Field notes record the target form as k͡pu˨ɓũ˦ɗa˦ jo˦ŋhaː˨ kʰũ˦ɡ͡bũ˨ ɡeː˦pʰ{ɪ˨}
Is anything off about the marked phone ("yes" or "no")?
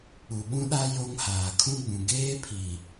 yes